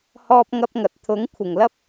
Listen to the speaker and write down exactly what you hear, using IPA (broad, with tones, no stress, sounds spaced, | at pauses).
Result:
h ɔː˥ p̚ ŋ ɐ˥ p̚ ŋ ɐ˨ t̚ t̪ʰ ʊ˨˥ ŋ kʷʰ ɪ˨˩ ŋ l ɐ˥ p̚